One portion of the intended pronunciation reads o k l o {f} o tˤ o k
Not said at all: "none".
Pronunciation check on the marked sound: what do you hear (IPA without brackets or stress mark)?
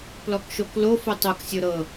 f